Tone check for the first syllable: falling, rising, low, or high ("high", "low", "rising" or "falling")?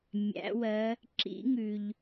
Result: rising